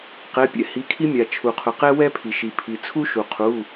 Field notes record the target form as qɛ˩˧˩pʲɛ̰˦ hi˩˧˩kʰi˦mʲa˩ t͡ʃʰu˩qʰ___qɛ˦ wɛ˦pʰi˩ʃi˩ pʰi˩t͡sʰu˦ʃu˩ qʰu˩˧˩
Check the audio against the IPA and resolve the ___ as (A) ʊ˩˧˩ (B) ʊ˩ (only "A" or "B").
B